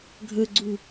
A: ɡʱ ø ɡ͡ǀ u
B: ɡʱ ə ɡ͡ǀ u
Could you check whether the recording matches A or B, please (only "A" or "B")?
B